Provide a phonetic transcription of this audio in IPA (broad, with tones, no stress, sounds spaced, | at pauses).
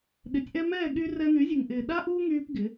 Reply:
ɗ ɪ˨˦ tʲ ʔ ɛ˦ m ɛː˦˨ ɠ y˧ r ɛ˧ n̪ y˨˦ zʲ u˨ ŋ ʔ ɪː˨ ɗ a˦ ʔ uː˦ ŋ yː˧ p ɡ ɪ˨˦